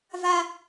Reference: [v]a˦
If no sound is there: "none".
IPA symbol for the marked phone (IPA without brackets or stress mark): v